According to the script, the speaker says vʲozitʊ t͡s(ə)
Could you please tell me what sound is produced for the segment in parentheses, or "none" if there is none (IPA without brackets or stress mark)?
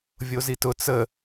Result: ə